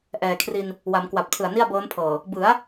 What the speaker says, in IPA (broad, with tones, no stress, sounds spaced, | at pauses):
ʔ ɛː˨˩ kʰ r i˧ n | w a˩˦ m k w a˨˩ p̚ tʰ ɯ˨˩ a̯ n i˥˩ a̯ b ɤː˦˥ n pʰ ɤː˨˩ | b ɯ˩˦ a̯